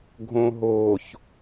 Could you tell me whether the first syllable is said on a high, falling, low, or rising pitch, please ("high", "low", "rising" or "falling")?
low